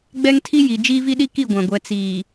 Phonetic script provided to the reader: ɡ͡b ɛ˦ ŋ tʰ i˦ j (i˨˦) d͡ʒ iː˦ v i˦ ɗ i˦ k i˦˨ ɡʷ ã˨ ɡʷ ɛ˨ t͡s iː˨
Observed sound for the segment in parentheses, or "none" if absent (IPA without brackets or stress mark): i˨